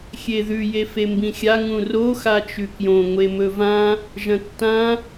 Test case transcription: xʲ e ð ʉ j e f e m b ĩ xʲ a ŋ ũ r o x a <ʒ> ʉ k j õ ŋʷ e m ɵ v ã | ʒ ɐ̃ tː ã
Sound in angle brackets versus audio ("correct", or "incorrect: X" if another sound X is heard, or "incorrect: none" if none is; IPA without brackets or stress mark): incorrect: t͡ʃ